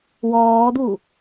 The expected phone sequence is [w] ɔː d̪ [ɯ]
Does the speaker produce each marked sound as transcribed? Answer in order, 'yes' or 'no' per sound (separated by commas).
yes, no